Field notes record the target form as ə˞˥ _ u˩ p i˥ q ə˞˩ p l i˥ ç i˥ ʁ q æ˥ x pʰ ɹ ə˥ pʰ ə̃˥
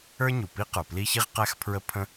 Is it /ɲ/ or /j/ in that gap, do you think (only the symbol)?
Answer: ɲ